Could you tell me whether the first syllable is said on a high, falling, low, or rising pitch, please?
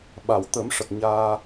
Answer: low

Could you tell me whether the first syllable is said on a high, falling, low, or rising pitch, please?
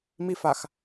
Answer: high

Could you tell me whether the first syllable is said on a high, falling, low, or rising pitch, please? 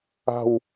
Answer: falling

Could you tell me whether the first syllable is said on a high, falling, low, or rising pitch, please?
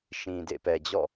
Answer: low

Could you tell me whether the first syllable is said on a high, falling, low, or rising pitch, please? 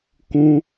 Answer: high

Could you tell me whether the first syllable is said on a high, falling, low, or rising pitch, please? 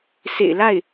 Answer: low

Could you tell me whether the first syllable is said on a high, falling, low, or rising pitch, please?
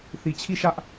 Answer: low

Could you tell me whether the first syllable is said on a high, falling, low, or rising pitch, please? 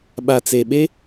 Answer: low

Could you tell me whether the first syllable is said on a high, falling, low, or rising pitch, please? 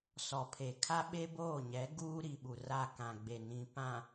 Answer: low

